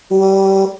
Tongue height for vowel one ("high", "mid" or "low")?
mid